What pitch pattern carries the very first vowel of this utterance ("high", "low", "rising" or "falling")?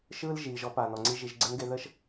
high